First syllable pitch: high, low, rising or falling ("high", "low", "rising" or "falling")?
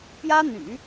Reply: high